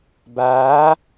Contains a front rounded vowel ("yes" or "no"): no